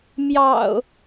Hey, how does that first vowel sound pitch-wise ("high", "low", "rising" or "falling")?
low